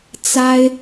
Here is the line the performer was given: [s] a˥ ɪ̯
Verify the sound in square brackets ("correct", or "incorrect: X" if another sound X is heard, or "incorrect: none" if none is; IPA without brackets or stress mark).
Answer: incorrect: t͡s